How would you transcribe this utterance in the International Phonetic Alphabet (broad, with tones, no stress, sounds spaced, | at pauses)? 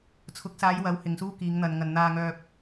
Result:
t͡sʰ ʊ˨˥ k̚ s aː˨˧ j w ɐ˨˥ w h ɪ˨ ŋ s uː˥ k iː˨˧ ŋ n̪ ɐ˨ n ŋ ɐ˨ n n̪ aː˧ ŋ œː˧ p̚